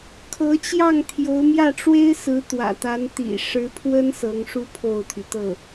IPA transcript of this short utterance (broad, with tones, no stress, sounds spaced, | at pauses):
kʰ ɤ˧˥ t͡ɕ j ɑ˥˩ ŋ t̪ʰ j o˧˥ ʊ̯ m j ä˥˩ ʈ͡ʂ w e˥ ɪ̯ s ɹ̩˧˥ t̪ w ä̰˨˩ t̪ a˧˥ n t̪ ḭ˨˩ ʂ ɻ̩˧˥ pʰ w ə˥ n s ɤ˧˥ ŋ ʂ u˥ pʰ o˥˩ ʊ̯ t̪ʰ y˩ t̪ ɤ˥˩